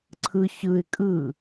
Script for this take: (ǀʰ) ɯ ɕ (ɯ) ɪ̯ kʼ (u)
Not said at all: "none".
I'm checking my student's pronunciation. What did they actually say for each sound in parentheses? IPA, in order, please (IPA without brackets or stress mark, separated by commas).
ǀʰ, ɯ, ɯ